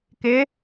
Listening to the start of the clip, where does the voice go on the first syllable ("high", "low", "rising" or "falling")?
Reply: rising